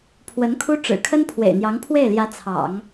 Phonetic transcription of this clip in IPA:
pʰ w ə˧˥ n kʰ u˥ ʈ͡ʂ ɻ̩˨˩ kʰ ə˥ n pʰ w ḛ˨˩ ɪ̯ n̪ j ɑ˧˥ ŋ pʰ w e˥˩ ɪ̯ l j ä˧˥ t͡sʰ ɑ̰˨˩˦ ŋ

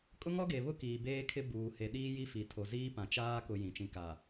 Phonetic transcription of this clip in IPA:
kʼ ʊ˦ ŋ ɔ˦ ɡ e˨ β ʊ˦ k iː˨ b eː˦ kʰ ɪ˦ b uː˨ h e˨ ɗ iː˦ j i˦ f i˨ tʰ o˨ z iː˦ p ã˨ t͡ʃ aː˦ k ʊ˨ j ĩ˨ t͡ʃ ĩ˨ k a˨

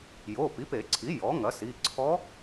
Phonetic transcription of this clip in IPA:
j o˩˧˩ p i˩˥ p e˨˩˦ ǀʰ i˩˥ j ɔ˩˥ ŋ ɐ˩˥ s i˩˧˩ ǀʰ ɔ˧˥

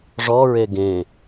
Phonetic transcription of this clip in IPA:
ʐ ɔ ɹ e ɡ ẽ

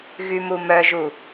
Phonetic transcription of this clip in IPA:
ɣ y m u m œ ʒ u

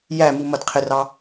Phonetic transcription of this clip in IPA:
j æ m u m ʌ d qʰ ɪ r ɑ

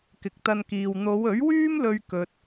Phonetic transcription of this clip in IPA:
k ɪ˨ k̚ t̪ ɐ˧ n k iː˨ w n̪ o˨˧ w ɵ˨˥ ɥ w yː˥ m l ɵ˥ ɥ k ɵ˧ t̚

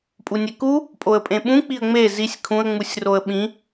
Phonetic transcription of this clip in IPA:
pʼ u nʲ e k u | pʼ o ə̯ pʼ ẽ ɓ ũ k͡p i ə̯ ŋ͡m e z i sʲ kʰ ũ ə̯ ŋ͡m u sʲ r o ə̯ ɓ ĩ

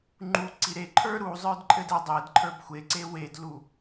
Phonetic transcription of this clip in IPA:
ŋ͡ǃ u ǀ i ɾ e ǃʰ ə˞ ɾ u zˤ ə˞ d ǃʼ ɘ d ɘ dˤ e d ǃʰ ə˞ b xʷ e ǀ e w e d l u

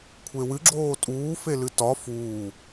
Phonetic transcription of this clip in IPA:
kʷʰ e w ɨ ɡ͡ǁ oː tʼ uː f e l ɨ t ɒ f uː

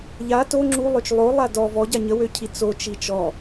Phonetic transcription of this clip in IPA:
ʎ a t o ŋ͡ǁ u lˠ ø t͡ʃ lˠ o lˠ a d ɔ v ɔ ɟ a ɲ ə w ø cʰ i t͡s o t͡ʃ i t͡ʃ ɔ

